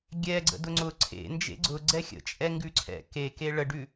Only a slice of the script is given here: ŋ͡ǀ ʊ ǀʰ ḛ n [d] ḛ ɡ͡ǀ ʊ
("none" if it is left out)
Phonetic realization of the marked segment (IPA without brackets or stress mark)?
d͡ʒ